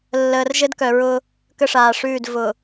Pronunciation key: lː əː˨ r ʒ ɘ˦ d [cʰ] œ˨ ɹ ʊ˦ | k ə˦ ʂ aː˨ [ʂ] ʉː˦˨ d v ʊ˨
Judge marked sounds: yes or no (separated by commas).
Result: no, yes